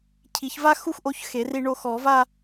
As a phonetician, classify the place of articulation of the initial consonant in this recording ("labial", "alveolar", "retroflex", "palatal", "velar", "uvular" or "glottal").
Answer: palatal